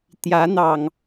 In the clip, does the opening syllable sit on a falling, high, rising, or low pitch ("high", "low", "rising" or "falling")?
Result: rising